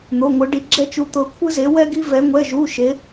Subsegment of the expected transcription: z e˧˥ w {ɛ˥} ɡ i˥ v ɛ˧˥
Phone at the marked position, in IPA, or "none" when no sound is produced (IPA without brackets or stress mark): ɛ˥